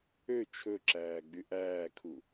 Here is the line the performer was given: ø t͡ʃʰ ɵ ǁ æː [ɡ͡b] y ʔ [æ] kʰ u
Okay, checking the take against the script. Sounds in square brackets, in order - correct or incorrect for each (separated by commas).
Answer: correct, incorrect